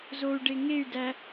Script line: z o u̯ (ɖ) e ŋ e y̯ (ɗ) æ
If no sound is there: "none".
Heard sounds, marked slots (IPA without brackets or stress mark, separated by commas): ɖ, d